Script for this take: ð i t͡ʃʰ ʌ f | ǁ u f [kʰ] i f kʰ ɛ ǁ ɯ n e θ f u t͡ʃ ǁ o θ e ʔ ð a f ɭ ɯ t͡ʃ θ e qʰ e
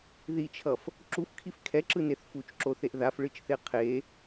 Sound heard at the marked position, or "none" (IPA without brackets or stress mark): kʰ